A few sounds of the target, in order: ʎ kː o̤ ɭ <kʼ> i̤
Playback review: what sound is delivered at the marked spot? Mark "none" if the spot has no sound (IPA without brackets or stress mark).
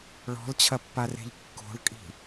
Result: kʼ